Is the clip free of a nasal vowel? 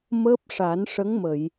yes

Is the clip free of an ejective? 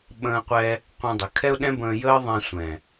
yes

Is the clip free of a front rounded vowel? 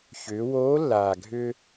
no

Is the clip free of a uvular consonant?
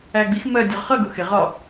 no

